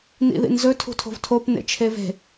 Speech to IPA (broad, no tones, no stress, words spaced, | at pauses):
nḭðḭnzɵ tʰṳtʰo̤vtʰop nḛt͡ʃʰeve̤